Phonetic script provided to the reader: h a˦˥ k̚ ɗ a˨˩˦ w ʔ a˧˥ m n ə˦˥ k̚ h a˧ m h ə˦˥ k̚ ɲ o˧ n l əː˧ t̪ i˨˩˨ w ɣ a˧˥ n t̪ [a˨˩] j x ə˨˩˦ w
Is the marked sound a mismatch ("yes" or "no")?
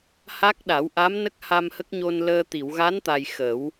no